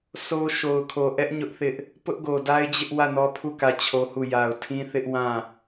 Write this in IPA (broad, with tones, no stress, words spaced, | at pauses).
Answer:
so˦ ʃo˨ʊ̯kʰo˨ ʔɛ˦ʔ ɲʊ˦ʔθɪ˦ʔ | pʊ˦ʔɡo˨da˦ɪ̯d͡ʑɪ˦ʔ wä˦˨nɔ˦pʰu˦˨ kä˦˨t͡ɕʰo˦hu˦˨ ja˨ʊ̯tʰĩ˦θɪ˦ʔ wã˦˨